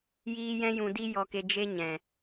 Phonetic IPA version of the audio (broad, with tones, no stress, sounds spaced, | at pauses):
j iː˦ j ɛ̃˦ j ũ˧ d i˦ j ɔ˧ k e˧ d͡ʒ e˦ ɲ ɛ̃˨